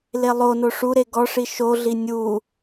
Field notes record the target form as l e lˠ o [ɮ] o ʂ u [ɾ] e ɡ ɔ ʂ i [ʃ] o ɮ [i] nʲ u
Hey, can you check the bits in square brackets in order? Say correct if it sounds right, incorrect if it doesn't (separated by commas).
incorrect, correct, correct, correct